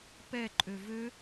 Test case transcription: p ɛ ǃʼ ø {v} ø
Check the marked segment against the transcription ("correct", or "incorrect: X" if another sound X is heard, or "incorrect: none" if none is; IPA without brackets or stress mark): correct